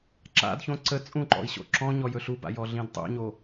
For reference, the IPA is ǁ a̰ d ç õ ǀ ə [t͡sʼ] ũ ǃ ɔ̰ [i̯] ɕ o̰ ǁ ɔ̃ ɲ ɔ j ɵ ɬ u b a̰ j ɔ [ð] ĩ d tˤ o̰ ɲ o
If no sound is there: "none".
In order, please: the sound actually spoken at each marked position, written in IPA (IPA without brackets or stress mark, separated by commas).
t͡sʼ, i̯, ɮ